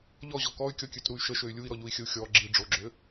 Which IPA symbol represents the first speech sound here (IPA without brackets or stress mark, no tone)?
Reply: ʎ